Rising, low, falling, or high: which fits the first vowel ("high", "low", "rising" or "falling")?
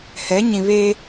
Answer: rising